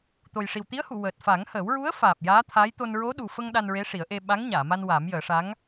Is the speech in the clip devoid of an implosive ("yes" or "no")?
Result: no